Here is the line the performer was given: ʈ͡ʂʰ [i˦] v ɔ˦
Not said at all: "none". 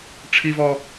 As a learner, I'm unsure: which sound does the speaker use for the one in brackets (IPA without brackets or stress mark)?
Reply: i˦